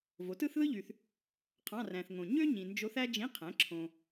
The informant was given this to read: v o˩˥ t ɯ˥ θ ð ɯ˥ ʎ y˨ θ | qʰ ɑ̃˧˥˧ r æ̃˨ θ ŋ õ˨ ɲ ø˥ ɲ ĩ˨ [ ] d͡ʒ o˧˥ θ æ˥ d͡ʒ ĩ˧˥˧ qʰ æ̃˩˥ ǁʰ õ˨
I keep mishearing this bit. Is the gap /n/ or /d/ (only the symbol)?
n